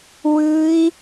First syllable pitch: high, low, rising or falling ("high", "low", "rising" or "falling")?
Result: high